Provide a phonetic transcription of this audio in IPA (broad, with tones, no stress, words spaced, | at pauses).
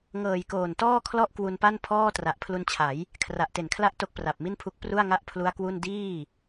ŋɤː˨˩jkoː˨˩ntɔː˥˩kʰlɔ˥˩ʔ kwu˧npa˥˩npʰɔː˥˩ tra˨˩ʔ pʰlu˧nt͡ɕʰa˩˦j | kʰra˨˩ʔte˨˩nkʰla˦˥ʔ to˦˥k̚pra˨˩p̚mi˥˩npʰu˦˥k̚ pru˥˩a̯ŋa˥˩ʔpʰlu˦˥a̯kwu˥˩n diː˥˩